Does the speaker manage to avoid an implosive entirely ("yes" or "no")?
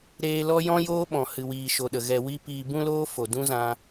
no